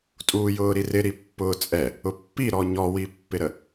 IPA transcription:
tʼuːjʊːɾirɪ ɾipːʊːt͡sʼɛ | ʊpːiɾɔ ɲɔwipːɪɾə

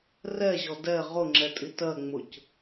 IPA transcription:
rɛʑɔ dɛ ʁʊŋ͡ǁɛtʼi tɜŋ͡mʊc

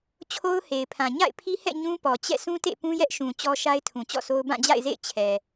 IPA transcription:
t͡ɕʰo˦ʊ̯he˨ɪ̯pʰã˨ ɲa̰˦˨ɪ̯pʰi˦hɛ̰˦˨ ɲũ˦pɔ˨ t͡ɕɛ̰˦˨sũ˦tḛ˦˨ pũ˦jɛ˦ʔʃũ˨ t͡ɕɔ˦ʃa˦ɪ̯ tʰũ˨ t͡ɕɔ̰˦˨so˦ʊ̯ bã˦˨d͡ʑa̰˦˨ɪ̯zḛ˦˨ɪ̯ t͡ɕʰɛ˨

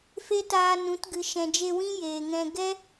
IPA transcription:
fe˦taː˧ nũ˨˦t ɡɨ˨ ʃɛ̃˨d͡ʒe˧wĩ˦ jeː˨ŋɛ̃˧ ɡɛ˦

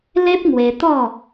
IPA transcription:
le˦p̚ŋwe˧ t̪ɔ˥˧

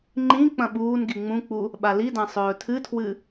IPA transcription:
ŋ͡ǃĩ k͡pɐ̃ɓuːnɡi ŋ͡mũk͡pu | ɓalidã sˤɵːtʰɨtʰwɨ

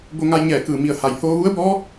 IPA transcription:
bo˧ŋa˧jɲɛː˧˩kɯː˧˩ mi˧˩ə̯ha˩j hoː˧ʋu˧˥ə̯bɔː˧˥

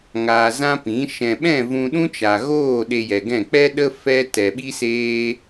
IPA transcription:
ŋaː˧zã˦pĩ˨˦ ʃɛ̃˨ɓɛ̃˦˨ vũ˧ ɗũ˦t͡ʃa˨ɣoː˦˨ ɗe˧jɛ˨ɡɛ̃˦˨ k͡pɛ˦ɗə˦ fɛ˦ tɛ˨ɓi˦seː˦

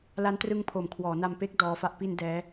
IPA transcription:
la˦˥ntrɯ˦˥ŋpʰo˨˩m kʰwɔː˩˦na˧mpe˦˥k̚ dɔː˦˥fa˦˥ʔ pi˧n dɛː˦˥

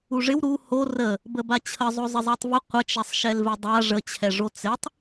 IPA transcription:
uʐɪw ɾu ho rə | bəbat͡ɕʰəzˤo zˤɪzˤatˤvə qʷət͡ʃɛsˤ ʃɛlvɪdˤa ʐət͡ɕʰɛʐo t͡sɪtˤ

